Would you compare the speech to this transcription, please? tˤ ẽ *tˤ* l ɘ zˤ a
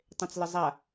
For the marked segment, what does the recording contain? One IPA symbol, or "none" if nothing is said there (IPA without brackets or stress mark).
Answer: t͡s